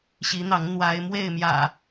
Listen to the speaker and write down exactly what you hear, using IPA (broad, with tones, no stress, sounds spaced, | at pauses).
ɕ i˨˦ n̪ ɑ˨˦ ŋ n̪ w a˨˦ ɪ̯ m w e˥˨ ɪ̯ m j ä̰˨˩